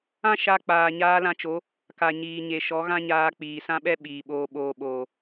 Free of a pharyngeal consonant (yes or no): yes